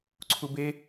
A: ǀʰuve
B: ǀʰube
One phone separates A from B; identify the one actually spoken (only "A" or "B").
B